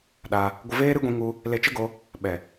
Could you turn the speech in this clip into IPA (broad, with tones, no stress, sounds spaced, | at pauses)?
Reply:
ɗ a˧ | ɡʷ ə˧ v eː˦ ɾ ɨ˦ ɡʷ ĩ˧ ŋ u˧ | l e˧ t͡ʃ ə˦ ɡ o˧ | ɓ ɛ˨